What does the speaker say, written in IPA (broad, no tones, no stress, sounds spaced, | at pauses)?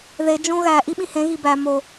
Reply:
ð e d͡ʒ õ ɣ æ ʔ i ɓ ĩ h ẽ ɣ i b æ m o